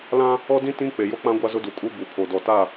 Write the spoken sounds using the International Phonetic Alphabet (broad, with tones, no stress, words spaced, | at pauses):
lã˦ | ɔ˦dĩ˦ tĩ˦ k͡pe˨jo˦k͡pã˦ ɡʷa˦zʊ˦du˨kʼu˦ bu˨pʰo˨ dɔ˨ta˦˨